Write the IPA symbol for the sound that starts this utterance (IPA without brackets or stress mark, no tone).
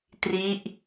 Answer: t